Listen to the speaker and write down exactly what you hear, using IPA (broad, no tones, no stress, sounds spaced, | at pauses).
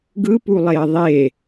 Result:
ɡ ɯ p u lˠ e ə̯ ðˤ e